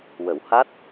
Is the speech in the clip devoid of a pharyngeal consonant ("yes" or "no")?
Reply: yes